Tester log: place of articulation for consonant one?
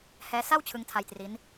glottal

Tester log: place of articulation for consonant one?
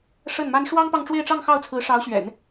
retroflex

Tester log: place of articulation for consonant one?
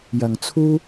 palatal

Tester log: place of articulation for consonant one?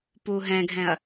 labial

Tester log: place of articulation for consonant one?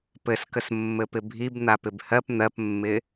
labial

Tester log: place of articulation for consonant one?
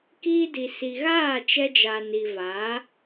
velar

